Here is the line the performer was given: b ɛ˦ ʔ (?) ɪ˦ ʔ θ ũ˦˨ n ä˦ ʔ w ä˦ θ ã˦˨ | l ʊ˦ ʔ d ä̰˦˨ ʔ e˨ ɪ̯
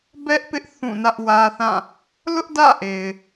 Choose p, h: p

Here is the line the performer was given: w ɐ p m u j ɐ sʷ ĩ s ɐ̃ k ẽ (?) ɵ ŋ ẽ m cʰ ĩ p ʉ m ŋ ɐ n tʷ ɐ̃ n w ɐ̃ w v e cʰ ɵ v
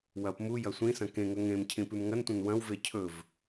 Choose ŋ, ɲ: ŋ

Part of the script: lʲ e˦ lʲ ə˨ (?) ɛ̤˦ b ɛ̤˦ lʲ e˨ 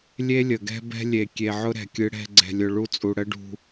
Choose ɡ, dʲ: ɡ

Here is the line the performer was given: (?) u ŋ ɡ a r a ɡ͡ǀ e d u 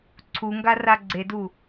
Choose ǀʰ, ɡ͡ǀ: ǀʰ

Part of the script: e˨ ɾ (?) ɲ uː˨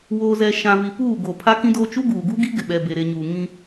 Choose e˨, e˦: e˨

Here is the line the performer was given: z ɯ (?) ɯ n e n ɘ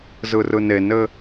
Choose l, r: r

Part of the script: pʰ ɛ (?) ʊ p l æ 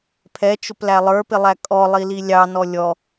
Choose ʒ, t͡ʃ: t͡ʃ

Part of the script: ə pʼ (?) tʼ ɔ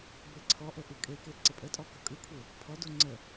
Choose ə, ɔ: ə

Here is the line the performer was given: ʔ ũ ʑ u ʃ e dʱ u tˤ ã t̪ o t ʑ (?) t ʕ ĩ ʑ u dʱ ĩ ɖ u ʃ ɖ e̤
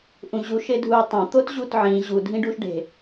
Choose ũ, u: u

